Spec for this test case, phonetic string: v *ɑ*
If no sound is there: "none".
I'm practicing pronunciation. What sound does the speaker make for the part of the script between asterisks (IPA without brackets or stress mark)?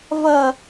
ʌ